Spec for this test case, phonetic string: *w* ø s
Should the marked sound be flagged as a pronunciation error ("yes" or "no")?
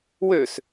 no